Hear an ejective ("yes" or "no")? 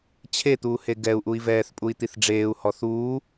yes